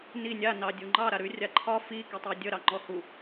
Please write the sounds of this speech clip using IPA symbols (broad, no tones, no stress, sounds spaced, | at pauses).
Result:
n i nʲ a n ɑ dʲ u ŋ͡ǃ ɑ ɾ a ɾ ʉ rʲ a ǃʰ ɒ f i k i tˤ a dʲ ə ɾ ɑ ŋ͡ǃ ɔ h u